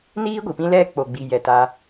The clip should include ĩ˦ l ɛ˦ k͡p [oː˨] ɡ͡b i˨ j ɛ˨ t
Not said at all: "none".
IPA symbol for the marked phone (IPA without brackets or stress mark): o˨